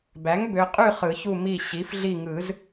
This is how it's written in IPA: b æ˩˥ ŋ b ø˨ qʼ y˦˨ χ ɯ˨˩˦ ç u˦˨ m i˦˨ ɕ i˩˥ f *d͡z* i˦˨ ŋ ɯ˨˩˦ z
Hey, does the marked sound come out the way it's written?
no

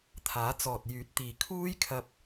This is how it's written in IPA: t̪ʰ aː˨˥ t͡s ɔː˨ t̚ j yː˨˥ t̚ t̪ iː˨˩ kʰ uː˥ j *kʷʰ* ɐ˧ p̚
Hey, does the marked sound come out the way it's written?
no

